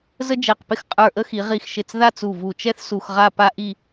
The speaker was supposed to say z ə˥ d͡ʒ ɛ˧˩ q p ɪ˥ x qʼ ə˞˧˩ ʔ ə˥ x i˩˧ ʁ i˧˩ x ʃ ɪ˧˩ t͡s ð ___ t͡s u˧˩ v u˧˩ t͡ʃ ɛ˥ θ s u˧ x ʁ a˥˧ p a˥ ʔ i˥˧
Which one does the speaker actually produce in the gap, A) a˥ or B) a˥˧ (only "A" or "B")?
B